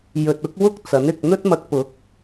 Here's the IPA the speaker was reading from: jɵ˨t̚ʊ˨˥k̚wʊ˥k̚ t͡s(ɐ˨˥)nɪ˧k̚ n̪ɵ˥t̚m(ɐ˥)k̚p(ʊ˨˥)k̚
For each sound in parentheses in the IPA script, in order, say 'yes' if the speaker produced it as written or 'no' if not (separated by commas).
yes, no, yes